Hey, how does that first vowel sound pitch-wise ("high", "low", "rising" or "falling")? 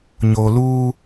low